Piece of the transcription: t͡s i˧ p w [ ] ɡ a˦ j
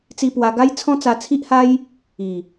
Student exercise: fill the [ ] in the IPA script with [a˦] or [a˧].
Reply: a˧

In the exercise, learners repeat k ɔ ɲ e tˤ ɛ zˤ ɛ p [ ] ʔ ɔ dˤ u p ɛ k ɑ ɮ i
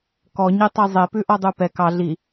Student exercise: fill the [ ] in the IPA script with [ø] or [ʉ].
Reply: ʉ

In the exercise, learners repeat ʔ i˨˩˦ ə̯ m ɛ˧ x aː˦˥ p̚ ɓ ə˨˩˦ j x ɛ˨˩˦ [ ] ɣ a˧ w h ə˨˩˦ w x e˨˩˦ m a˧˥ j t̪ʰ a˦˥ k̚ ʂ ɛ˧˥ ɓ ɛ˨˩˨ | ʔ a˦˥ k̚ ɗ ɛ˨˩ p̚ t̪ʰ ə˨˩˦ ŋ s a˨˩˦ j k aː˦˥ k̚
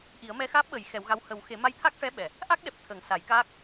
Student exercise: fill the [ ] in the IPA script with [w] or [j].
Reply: w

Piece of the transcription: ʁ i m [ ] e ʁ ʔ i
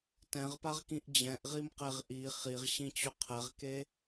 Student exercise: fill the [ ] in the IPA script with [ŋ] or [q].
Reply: q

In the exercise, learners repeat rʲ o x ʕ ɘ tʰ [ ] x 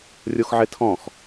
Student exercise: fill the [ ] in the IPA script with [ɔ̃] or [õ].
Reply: ɔ̃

